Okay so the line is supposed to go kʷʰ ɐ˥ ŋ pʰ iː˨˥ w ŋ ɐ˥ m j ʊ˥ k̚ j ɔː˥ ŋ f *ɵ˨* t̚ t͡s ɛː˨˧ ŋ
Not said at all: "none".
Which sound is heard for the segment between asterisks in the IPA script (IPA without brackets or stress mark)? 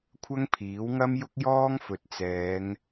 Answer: ɵ˨